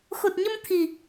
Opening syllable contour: low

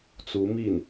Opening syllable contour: rising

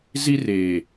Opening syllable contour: high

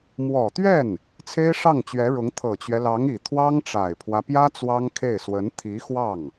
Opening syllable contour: low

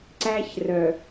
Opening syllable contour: high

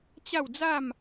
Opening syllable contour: falling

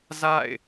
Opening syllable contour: falling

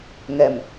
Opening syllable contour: low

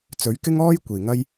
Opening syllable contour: rising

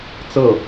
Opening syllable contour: falling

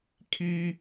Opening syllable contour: high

